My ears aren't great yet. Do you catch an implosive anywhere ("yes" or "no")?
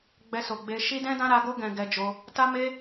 no